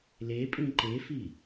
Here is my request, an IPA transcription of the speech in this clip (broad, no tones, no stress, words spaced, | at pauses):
lepʼĩ ǃefi